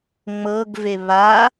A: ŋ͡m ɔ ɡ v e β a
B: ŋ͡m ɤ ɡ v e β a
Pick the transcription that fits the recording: B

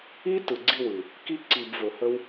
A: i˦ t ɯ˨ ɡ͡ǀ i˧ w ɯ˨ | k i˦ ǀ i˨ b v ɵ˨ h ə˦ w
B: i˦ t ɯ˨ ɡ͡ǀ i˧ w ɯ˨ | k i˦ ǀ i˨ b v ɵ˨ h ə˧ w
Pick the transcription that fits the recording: B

